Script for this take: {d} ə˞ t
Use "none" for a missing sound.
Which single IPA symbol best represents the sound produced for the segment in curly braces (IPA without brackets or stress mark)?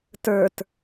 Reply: t